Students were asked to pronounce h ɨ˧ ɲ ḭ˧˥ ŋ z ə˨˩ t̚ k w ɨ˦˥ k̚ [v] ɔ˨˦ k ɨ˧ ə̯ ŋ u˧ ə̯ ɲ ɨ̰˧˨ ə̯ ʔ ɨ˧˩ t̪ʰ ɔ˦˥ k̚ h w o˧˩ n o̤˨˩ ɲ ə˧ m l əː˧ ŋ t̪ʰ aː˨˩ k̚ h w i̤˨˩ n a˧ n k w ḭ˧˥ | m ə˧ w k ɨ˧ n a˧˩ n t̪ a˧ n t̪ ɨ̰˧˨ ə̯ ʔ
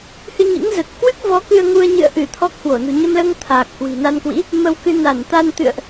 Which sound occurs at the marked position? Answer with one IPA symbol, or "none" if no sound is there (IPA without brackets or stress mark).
v